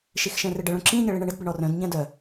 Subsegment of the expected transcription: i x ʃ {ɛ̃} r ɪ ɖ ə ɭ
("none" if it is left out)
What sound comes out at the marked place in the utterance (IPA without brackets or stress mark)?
ɛ̃